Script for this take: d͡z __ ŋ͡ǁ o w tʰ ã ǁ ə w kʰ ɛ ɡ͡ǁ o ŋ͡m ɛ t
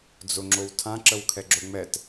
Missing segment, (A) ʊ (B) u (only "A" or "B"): A